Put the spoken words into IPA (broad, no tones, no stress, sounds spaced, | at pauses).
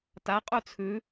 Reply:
t a qʼ u t͡sʰ ʉ